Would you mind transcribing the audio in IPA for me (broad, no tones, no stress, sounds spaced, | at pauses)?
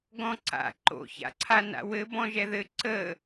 ɡ ɔ̃ ǀ a̰ ǃ o̰ ç a̰ ǀʰ a n a̰ w ɘ b ɔ̃ ʒ ɛ ð ɘ ǀ ə